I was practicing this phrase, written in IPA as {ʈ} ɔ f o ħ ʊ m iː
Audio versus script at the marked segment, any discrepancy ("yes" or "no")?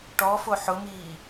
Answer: no